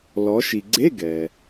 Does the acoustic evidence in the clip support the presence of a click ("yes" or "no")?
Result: yes